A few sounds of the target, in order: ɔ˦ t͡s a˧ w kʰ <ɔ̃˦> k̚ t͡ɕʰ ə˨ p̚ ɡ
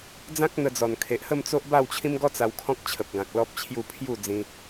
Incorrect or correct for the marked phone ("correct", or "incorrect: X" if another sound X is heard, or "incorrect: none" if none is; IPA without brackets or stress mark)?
correct